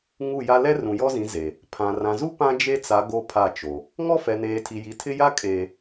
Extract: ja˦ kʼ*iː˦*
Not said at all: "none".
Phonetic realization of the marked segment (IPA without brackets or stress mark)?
eː˦